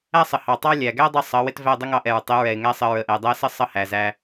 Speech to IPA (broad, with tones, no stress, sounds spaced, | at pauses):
æ˦ sˤ ə˨ h ɑ˨ tˤ ɑ˦ lʲ æ˨ ɡ æ˦ dˤ ʌ˧ sˤ ʌ˨˦ w ɪ˦ t v æ˦˨ dˤ ə˦ ŋ ɑ˧ ʔ ɛ˨ ɹ tˤ ɪ˨˦ ɹ ɛ˨ ɪ̯ ŋ æ˦ sˤ ə˧ ɹ ə˨ ʔ ɛ˨ dˤ æ˦ s ə˦ sˤ ʌ˦ h æ˨ z æ˧